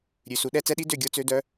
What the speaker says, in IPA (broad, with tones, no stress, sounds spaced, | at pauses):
ɾʲ ʉ˩˧ s u˩˧ ɗ ɛ˧˥ t͡s ɛ˧˥ ɗ i˧˥ d ø˦˨ ɡʲ o˧˥ t͡s ø˧˥ d œ˧˥